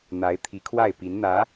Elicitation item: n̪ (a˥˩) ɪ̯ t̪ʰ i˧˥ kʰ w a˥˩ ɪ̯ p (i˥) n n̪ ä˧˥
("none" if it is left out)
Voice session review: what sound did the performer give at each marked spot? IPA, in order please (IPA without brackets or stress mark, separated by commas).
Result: a˧˥, i˧˥